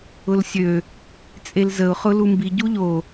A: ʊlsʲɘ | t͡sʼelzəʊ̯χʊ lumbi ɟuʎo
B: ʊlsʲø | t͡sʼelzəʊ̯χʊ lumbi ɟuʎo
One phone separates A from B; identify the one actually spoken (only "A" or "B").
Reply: B